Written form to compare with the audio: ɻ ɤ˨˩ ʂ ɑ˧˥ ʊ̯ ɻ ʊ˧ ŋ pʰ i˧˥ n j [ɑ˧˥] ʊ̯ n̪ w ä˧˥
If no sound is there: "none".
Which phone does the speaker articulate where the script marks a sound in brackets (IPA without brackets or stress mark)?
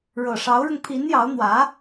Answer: ɑ˧˥